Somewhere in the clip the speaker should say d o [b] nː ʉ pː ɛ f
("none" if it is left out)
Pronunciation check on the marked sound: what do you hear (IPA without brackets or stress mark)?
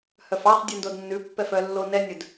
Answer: d